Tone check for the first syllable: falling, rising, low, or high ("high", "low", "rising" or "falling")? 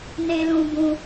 low